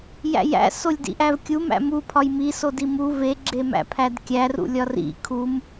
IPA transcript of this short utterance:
j æ̰ j æ̰ s o lʲ d ḭ ʔ æ v kʲ u m æ̰ m u pʰ ɒ j m i s o d i m u v e ɡ͡ǁ e m æ̰ pʰ æ d kʲ æ r ṵ lʲ ɒ r ḭ kʰ u m

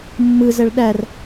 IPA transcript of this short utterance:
mː ɯ z ɛ ɭ ɗ æ r

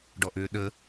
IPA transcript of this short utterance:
ɖ ɔ ʔ ʏː ɗ ə

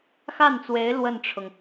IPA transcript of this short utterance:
x a˥˩ n t͡s w e˧˥ ɪ̯ l w ə˥˩ n ʈ͡ʂʰ ʊ˩ ŋ

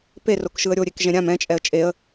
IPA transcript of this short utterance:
p e r o k ʃ ɯ ə̯ ɾʲ o ɾʲ e k ʒ ɛ̃ ɾʲ ã m ɛ̃ t͡ʃʼ ɛ ə̯ t͡ʃʼ e ə̯

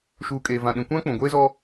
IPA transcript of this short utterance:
ʃ uː˨ kʼ eː˨ v ã˨ ɗ ĩ˨ kʷ ã˦ k͡p ũ˨ ɡʷ eː˦ z ɔ˦

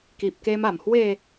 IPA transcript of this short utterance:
k i˨ p̚ k e˧ m a˨˩ m h w e˥˧

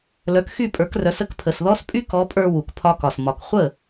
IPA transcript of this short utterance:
l œ˩˥ k x y˥˩ pʼ ə˞˩˥ k r œ˩˥ s ə˥ k pʰ ə˩ s ð ɔ˥ s pʼ y˥ k ɔ˩˥ pʼ ə˞˧ w u˩ k pʰ ɒ˧ k ɒ˩ s m ɒ˩ k χʷ ə˥˩

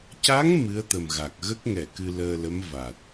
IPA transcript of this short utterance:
c a˧˥ ŋ m ɨ˧˥ ə̯ t̪ ə˨˩ m ɣ a˨˩ k̚ ɣ ə˦˥ k̚ ŋ ɛ˨˩˨ k ɨ˧ l əː˧ l ə˧˥ m v a˨˩ t̚

